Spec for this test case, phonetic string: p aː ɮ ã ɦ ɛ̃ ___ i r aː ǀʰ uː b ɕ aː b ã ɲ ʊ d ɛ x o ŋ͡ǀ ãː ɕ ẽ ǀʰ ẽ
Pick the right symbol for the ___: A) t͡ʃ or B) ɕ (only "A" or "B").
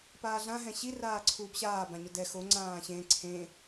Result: B